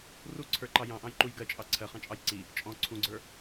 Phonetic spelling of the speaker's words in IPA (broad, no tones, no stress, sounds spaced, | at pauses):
r u ǀʰ ə˞ ǃ ɑ j ɑ̃ ʔ ɑ̃ j ǃ u j ɡ ɜ t͡ʃʼ ɑ ǀʰ ɜ χ ɑ̃ t͡ʃʼ ɑ j ǀ i | t͡ʃʼ ɔ̃ ǀʰ ũ ɡ͡ǀ ə˞